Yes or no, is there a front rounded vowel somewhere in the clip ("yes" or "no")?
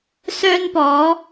yes